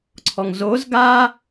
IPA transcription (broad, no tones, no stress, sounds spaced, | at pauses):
ǀʰ ɔ ŋ z o z ɡ aː